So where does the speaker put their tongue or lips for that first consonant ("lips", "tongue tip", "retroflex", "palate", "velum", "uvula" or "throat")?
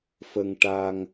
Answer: lips